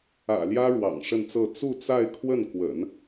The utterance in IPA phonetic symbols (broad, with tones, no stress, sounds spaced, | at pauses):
ä̰˨˩ l j ä˥ ɻ w ɑ̰˨˩ ŋ ʂ ə˥˧ n t͡s ɤ˥˧ t͡s u˥˧ t͡s a˥˧ ɪ̯ kʰ w ə˥˩ n k w ə̰˨˩˦ n